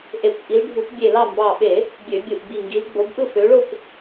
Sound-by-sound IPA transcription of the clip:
ʔ e˧˩˧ kʷ ʔ i˨˦ l ɖʱ u˧˩˧ p bʲ e˧˩ l ɑ˥˨ m b ɑ˧˩ ɓ e˧˩˧ | bʲ ø˧˩˧ bʲ ɯ˧˩ ʔ ɡ͡b i˧˩ ŋ ɡ i˨˦ l ɡ͡b o˨˦ b ʔ ɯ˥˨ f ø˨˦ ɭ o˥˨ kʷ

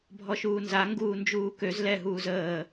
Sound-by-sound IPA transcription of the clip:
bʱ ɔ ʃ uː n z a ŋ ɡ uː n d͡ʒ uː k ø z l ɛ ɦ uː z əː

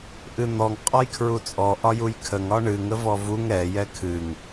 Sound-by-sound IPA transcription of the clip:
ʔ ɨ n̪ ɔ ŋ qʼ ɒ j kʰ ɹ u t͡sʼ ɔ ʔ ɒ j u j kʰ ə ŋ ɒ ɳ ɨ ŋ ə v ɔ v u ŋ ɾ ɛ j ɛ kʰ ɨ ŋ

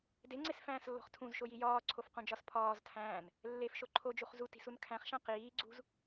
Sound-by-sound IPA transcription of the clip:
d e ŋ͡ǀ e s f æ̃ː s lː o̤ χ tʰ ũ z ʃ o j i j ɒː ǀʰ o f q ũ d͡ʒ ɒ s pʰ ɒː z tʰ æ̃ː n | lː e f ʃ o ǃʰ o d͡ʒ u χ z u t i̤ s u n kʰ æ̃ χ ʃ æ̃ q iː ɡ͡ǀ ṳ z

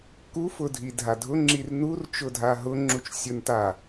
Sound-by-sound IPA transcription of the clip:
k u f ʊ dʱ i dʱ a dʱ ʊ ŋ͡ǁ i r n u r t͡ʃ ʊ dʱ a ɦ ʊ ŋ͡ǁ u t͡ʃ sʲ ʊ n t a

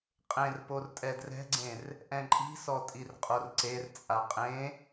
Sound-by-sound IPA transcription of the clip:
qʼ ẽ r p o r tʼ ɛ d r ɛ̤ ɡ͡ǀ ẽ r | ʔ ɛ̃ ǃʼ i̤ s ɔ tʼ i r qʼ o r ǀ e r t͡sʼ a qʼ ẽ

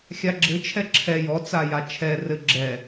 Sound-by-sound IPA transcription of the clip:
xʲ a ɡ͡ǁ ɘ t͡ʃʰ ɛ ǁʰ ɛ j ɔ t͡s a j a t͡ʃʰ ɛ r ɘ ɡ͡ǁ ɛ

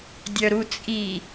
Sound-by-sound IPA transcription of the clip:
dʲ œ ɾ u t͡sʼ i

